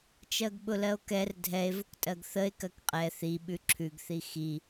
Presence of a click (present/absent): present